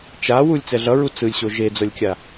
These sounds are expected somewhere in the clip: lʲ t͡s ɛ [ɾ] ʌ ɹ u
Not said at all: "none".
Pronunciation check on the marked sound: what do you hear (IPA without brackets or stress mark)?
ɮ